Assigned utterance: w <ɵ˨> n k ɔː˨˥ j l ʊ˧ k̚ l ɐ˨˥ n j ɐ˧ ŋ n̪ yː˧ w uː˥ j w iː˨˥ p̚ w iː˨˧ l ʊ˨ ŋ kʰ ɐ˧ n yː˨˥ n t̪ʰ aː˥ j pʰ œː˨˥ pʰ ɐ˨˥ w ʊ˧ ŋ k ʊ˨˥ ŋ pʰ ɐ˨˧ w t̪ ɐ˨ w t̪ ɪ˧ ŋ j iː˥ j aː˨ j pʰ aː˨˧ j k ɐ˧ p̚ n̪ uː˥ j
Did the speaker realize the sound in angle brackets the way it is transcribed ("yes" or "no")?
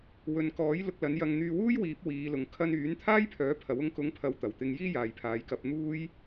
yes